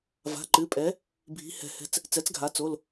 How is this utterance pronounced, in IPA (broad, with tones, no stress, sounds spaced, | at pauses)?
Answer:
v a̤˩˧˩ ǃ ɨ˩˧˩ pʼ ɛ˩˥ | bʱ i̤˩˥ h ɛ̤˩˧ h ɛ̤˩˧˩ t͡s | t͡s ɛ˩˥ t͡s ɡʱ a˩˧ t͡s o˩˧˩ l